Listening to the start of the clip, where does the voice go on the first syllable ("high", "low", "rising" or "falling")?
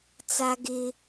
high